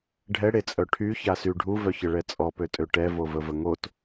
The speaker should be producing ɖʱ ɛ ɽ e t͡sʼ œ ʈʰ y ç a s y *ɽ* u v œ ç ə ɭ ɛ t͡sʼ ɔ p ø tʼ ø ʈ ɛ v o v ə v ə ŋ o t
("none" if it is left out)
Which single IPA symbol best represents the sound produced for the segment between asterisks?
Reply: ɖʱ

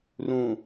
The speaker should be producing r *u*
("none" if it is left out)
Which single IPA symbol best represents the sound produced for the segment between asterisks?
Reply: ũ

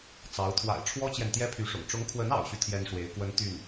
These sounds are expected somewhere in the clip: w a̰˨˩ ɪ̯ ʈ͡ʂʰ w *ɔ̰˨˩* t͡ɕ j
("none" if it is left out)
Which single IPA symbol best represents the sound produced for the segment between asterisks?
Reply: ɔ˥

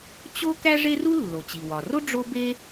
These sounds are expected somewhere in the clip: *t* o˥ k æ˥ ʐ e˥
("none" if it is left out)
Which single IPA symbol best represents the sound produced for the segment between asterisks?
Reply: t͡ɕ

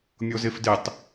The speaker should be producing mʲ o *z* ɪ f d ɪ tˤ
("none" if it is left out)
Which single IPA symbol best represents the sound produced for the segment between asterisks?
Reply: z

